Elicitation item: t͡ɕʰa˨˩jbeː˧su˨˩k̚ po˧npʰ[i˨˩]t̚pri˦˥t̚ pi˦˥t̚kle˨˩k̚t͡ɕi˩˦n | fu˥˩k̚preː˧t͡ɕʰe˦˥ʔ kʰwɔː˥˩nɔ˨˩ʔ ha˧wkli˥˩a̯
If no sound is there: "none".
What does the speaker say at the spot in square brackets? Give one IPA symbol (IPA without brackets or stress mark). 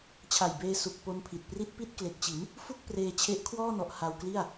i˨˩